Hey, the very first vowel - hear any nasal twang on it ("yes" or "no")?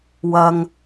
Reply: no